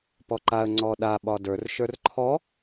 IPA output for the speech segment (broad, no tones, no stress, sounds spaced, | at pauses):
p ɔ ǃ a ə̯ ŋ͡ǀ ɔ ɗ a ɓ ɒ d ə˞ r ʃ ə˞ r ǃʰ ɔ